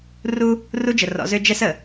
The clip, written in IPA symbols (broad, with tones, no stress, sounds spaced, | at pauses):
r u˦ | r u˦ d͡ʒ ə˨ r ɔ̰˨˦ z ø˦ d͡ʒ ɛ˦ s ə˨